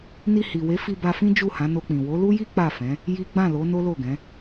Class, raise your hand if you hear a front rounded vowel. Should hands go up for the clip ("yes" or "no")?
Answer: no